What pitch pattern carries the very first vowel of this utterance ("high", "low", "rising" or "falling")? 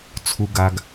low